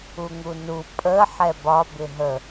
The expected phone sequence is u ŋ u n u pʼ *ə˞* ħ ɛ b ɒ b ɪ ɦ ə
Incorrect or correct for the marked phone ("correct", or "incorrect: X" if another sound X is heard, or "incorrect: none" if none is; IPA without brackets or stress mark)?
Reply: incorrect: ə